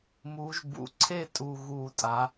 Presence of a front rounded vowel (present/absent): absent